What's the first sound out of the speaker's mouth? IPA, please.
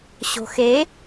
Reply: ɕ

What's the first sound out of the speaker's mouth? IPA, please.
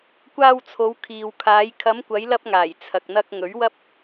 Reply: kʷ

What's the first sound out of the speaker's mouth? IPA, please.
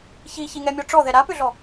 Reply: ç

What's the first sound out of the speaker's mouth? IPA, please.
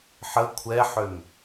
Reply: ħ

